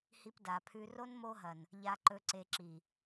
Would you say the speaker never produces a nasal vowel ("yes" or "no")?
yes